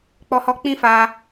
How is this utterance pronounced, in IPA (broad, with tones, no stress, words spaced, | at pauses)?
k͡pɔ˧hɔ˧k͡pĩ˦ fa˧